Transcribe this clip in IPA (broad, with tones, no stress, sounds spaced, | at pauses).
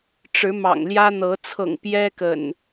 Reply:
ʈ͡ʂ ɻ̩˨˦ m ɑ̰˨˩ ŋ l j ä˦ n̪ ɤ˨˦ t͡sʰ ɤ̰˨˩ ŋ p j ɛ˦ k ə̰˨˩ n